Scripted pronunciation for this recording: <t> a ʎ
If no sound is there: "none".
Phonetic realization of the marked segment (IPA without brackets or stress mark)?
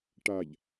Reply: ʈ